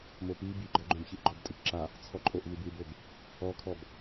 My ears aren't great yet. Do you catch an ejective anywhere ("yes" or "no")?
yes